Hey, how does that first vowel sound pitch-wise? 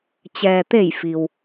low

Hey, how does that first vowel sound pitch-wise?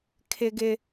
high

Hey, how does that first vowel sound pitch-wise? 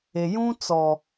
low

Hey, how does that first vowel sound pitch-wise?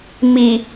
low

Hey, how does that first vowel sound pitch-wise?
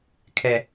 low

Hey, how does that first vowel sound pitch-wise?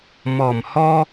low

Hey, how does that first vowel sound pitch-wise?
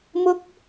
high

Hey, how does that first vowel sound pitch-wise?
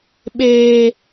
high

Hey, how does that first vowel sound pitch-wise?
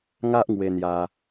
high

